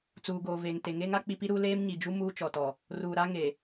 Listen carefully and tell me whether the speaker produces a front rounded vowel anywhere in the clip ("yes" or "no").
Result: no